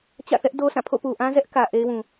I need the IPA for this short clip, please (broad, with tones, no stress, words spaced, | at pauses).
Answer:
t͡ɕä̰˦˨θɛ˦ʔdo˦sʰã˦˨ pʰo̰˦˨pu˨ʔã˦zɛ˦ʔ kä˨ ʔe˦ɪ̯wũ˨